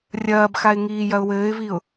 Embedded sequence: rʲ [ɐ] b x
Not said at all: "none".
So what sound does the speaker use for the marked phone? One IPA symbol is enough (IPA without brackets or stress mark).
ɐː